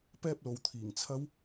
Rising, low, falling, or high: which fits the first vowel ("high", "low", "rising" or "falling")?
high